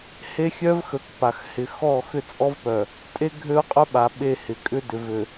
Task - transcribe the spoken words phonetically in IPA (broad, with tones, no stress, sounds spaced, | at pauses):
h e˦ xʲ œ˦ v x ə˨ k p a˨ x h ɪ˨ x ɔ˦˨ x ʏ˦ t͡sʼ ɔ˦ v p œ˨ | tʼ e˦ ɡʱ ø˦ ʊ̯ qʼ œ˦ ɓ a˨ ɓ e˦˨ h ɪ˨ kʼ ʏ˦ d ʏ˨ v ø˨